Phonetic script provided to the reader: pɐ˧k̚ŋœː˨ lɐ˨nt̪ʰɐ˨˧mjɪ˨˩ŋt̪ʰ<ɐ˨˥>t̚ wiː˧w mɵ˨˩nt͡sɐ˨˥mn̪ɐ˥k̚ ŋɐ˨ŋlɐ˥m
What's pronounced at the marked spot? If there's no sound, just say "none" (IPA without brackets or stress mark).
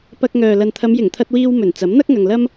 ɐ˧